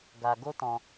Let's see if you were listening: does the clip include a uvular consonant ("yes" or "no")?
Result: no